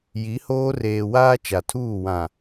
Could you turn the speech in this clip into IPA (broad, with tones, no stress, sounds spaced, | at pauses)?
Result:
j i˨˦ h oː˦ r eː˨ w aː˦ t͡ʃ a˨ tʰ uː˦˨ w ã˨